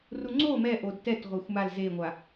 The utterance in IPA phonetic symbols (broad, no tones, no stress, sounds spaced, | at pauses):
r u ŋ͡ǀ o m ɛ ʔ o d t ɛ t ʁʷ e xʷ m a l z e ŋʷ a